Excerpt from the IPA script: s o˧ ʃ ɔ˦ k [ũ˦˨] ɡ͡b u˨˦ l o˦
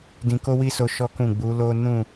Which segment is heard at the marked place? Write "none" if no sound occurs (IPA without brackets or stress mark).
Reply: ũ˦˨